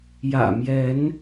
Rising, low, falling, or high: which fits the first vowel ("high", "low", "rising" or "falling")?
low